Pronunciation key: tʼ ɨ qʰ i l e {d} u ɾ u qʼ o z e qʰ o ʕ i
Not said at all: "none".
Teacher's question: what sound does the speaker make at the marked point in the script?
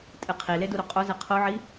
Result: d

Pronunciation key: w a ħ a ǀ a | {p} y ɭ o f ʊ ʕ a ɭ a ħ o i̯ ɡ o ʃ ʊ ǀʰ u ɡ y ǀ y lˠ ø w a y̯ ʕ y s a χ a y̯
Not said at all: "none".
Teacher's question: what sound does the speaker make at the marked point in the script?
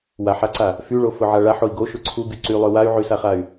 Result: f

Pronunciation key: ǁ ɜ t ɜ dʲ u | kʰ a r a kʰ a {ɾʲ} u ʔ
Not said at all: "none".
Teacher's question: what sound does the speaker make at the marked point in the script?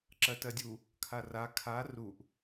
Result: r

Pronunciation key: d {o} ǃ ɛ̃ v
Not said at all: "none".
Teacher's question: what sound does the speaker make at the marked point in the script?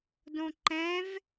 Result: õ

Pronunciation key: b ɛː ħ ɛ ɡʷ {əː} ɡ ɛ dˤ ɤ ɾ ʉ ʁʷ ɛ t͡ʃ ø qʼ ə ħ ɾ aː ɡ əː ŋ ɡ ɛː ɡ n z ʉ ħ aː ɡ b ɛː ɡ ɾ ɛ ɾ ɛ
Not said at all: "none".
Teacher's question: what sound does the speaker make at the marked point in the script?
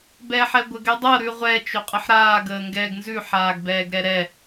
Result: ə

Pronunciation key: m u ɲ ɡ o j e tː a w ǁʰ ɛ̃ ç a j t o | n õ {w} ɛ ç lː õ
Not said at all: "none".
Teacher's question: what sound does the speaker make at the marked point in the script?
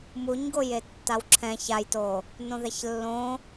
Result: ð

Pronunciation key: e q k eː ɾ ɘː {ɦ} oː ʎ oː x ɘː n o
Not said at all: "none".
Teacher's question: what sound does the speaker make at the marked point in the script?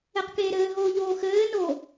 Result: ɦ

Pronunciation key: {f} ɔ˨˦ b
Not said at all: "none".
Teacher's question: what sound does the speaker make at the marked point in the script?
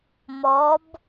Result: m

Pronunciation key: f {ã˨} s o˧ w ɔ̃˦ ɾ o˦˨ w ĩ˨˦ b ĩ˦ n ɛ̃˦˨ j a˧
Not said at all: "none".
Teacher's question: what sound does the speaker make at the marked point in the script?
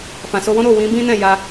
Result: ã˨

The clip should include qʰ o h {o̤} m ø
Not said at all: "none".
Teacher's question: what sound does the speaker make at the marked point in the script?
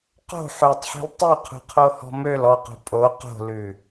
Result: ɔ̤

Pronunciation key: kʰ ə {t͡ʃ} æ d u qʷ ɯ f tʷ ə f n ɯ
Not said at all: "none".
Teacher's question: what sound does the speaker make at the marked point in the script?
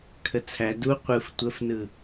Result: t͡sʰ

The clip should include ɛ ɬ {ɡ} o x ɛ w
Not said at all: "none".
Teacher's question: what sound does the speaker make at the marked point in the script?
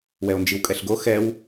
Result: ɡ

